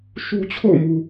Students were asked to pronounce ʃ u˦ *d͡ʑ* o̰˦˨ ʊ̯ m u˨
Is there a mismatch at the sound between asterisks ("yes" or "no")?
yes